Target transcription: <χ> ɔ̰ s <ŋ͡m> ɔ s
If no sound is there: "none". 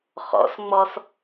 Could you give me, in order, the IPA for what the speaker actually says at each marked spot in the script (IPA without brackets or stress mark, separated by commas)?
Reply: χ, ŋ͡m